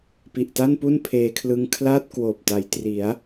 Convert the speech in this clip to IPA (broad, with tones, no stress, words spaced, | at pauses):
pi˨˩ʔta˥˩npu˥˩n pʰeː˧kʰlɯ˧ŋ kʰlaː˥˩t̚kwoː˨˩p̚ta˩˦j tri˩˦a̯